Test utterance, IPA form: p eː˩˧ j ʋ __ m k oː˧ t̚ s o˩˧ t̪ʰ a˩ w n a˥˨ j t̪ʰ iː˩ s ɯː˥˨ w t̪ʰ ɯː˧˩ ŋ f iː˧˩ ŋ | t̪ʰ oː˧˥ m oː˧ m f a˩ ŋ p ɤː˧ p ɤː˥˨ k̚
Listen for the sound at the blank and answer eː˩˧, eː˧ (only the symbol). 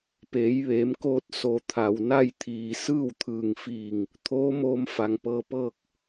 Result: eː˩˧